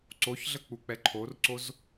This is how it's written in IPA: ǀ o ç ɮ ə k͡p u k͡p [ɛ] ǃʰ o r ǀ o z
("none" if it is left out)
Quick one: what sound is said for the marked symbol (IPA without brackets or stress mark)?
ɛ